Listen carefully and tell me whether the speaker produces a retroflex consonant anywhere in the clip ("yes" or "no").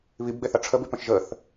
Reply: yes